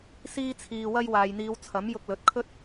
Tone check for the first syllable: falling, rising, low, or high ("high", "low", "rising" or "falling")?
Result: high